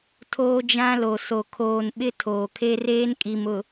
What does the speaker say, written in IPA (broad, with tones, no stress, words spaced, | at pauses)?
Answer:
tʰoː˦d͡ʒã˦lo˨ so˨kʰoː˨nɓɪ˦ tʰoː˨kʰe˦reː˦nkʼi˨m ʊ˨